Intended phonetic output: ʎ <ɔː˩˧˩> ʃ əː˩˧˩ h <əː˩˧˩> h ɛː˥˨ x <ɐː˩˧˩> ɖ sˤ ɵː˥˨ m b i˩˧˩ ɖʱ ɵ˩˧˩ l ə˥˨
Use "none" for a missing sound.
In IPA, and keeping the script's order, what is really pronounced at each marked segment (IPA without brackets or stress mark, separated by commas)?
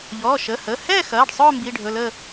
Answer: ɔː˩˧˩, əː˩˧˩, ɐː˩˧˩